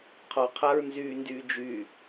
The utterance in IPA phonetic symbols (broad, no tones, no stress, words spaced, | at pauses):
qʰɔ qʰaɹnzyːndyːd͡ʒy